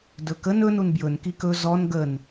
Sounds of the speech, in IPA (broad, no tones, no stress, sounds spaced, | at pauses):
d ɵ k ə n ɵ n u n b j ɵ n k i k ɵ z ɔ n ɡ ə n